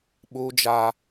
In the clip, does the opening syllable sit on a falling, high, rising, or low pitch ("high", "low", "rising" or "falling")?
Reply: high